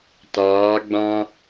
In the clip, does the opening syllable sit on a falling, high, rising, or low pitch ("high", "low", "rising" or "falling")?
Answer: rising